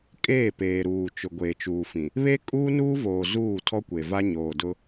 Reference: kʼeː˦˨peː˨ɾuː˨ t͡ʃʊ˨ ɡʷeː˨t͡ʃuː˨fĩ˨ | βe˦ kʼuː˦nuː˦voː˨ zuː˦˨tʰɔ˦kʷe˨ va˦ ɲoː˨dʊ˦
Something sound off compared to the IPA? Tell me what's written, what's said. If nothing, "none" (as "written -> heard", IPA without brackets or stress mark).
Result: none